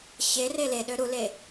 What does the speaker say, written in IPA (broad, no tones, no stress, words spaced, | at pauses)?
ɕere leɗø ɾule